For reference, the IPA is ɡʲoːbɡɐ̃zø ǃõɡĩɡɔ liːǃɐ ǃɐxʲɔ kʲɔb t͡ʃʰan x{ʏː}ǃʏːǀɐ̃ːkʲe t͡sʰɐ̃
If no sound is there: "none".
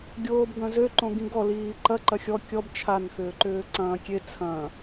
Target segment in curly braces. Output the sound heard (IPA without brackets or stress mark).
ʏː